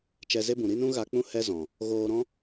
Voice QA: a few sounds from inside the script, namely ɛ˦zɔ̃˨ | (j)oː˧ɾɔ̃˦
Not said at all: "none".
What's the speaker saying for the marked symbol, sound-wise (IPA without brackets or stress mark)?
ɣ